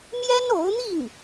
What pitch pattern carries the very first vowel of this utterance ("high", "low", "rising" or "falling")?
high